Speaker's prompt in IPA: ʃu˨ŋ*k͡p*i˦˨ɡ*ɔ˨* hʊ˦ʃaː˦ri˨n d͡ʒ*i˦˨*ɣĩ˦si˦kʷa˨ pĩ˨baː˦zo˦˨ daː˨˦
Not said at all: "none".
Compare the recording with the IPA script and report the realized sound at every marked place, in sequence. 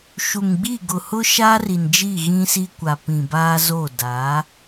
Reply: ɡ͡b, ʊ˨, i˦˨

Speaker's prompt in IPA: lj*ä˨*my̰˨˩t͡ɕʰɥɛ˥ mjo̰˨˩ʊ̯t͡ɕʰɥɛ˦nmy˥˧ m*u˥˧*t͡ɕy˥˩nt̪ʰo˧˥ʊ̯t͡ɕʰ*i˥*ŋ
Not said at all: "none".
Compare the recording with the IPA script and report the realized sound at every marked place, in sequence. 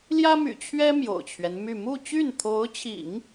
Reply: ä˥, u˥˧, ḭ˨˩˦

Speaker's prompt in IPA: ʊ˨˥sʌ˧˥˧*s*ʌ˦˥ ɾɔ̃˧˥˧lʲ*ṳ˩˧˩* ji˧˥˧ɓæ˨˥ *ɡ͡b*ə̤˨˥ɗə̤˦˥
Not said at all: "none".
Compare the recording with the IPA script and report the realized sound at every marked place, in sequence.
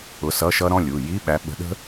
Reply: ʃ, u˩˧˩, ɓ

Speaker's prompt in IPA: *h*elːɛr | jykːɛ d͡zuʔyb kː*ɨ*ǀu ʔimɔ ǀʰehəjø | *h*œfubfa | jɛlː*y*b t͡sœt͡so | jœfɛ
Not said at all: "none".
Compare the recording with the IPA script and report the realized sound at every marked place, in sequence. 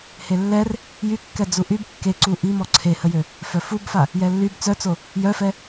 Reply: h, e, f, y

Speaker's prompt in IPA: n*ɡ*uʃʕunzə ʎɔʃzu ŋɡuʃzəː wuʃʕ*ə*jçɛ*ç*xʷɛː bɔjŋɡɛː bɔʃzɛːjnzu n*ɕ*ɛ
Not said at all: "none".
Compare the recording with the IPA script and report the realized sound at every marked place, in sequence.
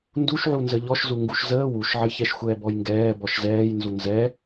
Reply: d, ə, ʃ, z

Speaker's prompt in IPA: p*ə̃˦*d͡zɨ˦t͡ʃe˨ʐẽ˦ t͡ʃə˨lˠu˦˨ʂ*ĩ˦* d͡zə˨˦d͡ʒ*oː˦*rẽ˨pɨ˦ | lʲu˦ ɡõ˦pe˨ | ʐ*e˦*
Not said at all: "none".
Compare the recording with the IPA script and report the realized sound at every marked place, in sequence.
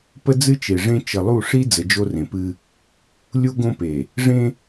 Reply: ə˦, i˦, o˦, ẽ˦

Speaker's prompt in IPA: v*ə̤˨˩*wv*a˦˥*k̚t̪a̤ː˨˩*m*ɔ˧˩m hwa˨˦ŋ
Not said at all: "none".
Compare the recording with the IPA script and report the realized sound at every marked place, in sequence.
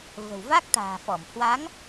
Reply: ə̤˨˩, a˦˥, f

